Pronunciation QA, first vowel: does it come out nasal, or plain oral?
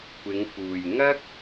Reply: oral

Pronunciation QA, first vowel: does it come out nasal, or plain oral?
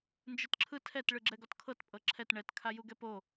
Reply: oral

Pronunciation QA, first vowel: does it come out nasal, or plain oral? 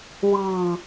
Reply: oral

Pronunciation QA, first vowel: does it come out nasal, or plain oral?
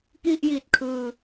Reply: oral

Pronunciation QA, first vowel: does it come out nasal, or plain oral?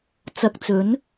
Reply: oral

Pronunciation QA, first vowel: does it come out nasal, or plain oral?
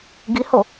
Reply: oral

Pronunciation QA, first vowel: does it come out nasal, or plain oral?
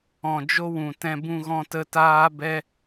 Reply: nasal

